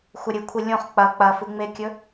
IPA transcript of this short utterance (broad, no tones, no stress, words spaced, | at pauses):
xʷɐɾʲɨkʷʰi lʲõχ k͡pɐ k͡pɐfɨŋ͡mekʲɵ